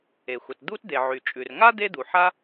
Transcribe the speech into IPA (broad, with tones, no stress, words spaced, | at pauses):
e˩xʷə˩td̪u˥t d̪e˩ ʕy˩t͡ʃʼʉ˩r ŋa˥ d̪e˥d̪u˩ħa˥